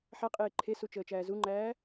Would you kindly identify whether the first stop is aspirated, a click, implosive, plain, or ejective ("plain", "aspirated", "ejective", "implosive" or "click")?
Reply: ejective